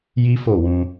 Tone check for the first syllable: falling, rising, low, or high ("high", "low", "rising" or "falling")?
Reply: high